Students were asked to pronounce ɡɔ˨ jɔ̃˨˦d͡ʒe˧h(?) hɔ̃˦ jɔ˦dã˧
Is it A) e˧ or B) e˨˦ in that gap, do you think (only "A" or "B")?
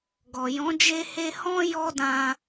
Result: A